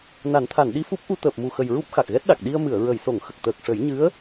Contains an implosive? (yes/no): yes